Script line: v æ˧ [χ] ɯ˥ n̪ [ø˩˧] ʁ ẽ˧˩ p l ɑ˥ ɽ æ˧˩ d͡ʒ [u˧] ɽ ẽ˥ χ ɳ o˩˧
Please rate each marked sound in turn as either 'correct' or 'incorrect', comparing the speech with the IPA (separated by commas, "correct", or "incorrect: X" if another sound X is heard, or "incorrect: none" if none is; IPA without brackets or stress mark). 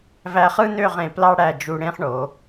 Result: correct, incorrect: ø˥˧, correct